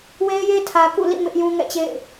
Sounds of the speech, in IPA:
we˦ɪ̯je˦ tʰä˨kṵ˦˨lḭ˦˨ mɪ˦ʔjũ˦ŋɛ̰˦˨t͡ɕḛ˦˨ɪ̯

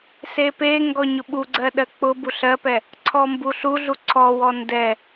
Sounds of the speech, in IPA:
sepeŋɡɔ ɲʊɓuɡ͡ǀɜ ɗɜk͡pʊbu ɬɜpɛ | ǀʰɔmbuɬuɮu ǀʰɔwɔ ndɛ

